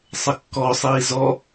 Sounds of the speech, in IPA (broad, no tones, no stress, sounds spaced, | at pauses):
sˤ ə kː ɔ sˤ iː z ɔ